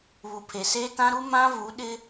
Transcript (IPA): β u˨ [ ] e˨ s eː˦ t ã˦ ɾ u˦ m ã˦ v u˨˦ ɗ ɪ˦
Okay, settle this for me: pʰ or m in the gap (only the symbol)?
pʰ